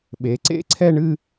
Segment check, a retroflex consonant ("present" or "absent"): present